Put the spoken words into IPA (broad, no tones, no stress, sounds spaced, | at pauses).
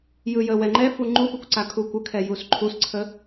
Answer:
j ɯ j ə w ɛ ŋ͡ǃ ɛ f u ŋ͡ǃ u p ɯ kʷ ǀ a kʰ u kʷ ə kʰ ɛ j u s ǃʰ u s ǀʰ ə